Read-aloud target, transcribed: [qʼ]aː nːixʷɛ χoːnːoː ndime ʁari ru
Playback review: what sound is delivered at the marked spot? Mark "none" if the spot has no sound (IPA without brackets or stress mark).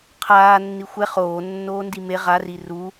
qʰ